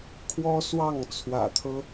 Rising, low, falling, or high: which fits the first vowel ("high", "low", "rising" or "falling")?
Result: high